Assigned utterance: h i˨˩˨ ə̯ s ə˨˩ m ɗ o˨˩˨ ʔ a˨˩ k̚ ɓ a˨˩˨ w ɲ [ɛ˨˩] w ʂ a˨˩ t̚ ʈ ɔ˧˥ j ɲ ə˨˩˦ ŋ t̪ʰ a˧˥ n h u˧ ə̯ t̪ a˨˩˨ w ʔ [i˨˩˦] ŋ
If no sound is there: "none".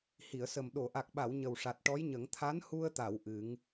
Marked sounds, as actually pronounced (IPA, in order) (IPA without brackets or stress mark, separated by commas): ə˨˩, ɨ˨˩˦